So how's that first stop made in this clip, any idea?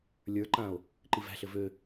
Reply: click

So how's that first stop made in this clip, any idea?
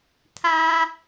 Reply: aspirated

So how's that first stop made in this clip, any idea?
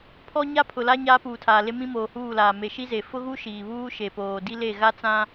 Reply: aspirated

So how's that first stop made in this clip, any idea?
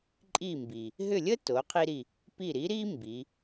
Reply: click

